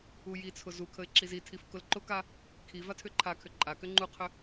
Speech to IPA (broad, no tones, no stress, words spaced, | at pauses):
ujit͡sʰʊ zukʰəɪ̯ ǁizitʰif kʊlǃʊka | kʰi vatʰʏǃʰakʰʏ ǃʼakʏ ŋ͡ǃuqʰʏ